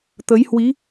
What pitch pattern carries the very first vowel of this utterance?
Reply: rising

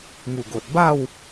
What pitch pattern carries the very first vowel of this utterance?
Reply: low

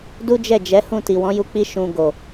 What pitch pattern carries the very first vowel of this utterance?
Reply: high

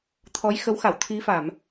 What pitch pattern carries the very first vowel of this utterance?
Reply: rising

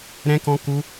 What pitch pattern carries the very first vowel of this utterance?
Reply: high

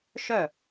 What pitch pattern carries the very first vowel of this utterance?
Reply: falling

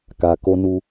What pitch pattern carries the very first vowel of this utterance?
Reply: low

